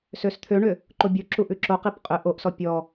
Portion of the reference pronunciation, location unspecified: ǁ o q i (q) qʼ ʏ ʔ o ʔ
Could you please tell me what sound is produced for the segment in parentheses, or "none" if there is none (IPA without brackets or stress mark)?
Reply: p